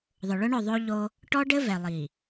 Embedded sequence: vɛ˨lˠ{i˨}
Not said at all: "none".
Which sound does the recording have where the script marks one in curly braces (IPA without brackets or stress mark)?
i˨